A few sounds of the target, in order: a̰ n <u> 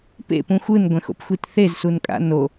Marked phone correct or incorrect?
incorrect